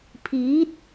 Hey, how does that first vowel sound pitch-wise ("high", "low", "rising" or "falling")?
rising